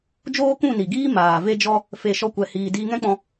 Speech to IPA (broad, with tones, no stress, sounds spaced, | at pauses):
d͡ʒ oː˦ k ũ˦˨ n i˨ ɡ iː˦ m aː˨ v e˦ d͡ʒ ɔ˦ | f e˧ ʃ ɔ˦ kʷ ɛ˧ h iː˧ d iː˧ ŋ ɛ̃˦ k͡p ɔ̃˧